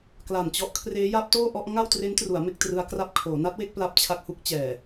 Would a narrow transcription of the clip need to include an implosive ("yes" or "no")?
no